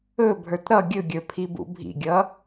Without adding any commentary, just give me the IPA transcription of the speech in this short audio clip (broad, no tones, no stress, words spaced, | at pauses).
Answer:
ɵbʱə˞t ɾʌ ɡʲɵɡʲə˞ pʰibṵbʱḭɡʲʌ